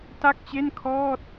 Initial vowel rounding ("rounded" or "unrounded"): unrounded